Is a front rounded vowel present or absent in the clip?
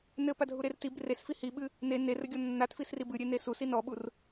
absent